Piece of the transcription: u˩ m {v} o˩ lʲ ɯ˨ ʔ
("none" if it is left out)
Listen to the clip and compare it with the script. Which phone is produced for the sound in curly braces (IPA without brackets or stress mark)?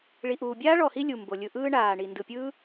b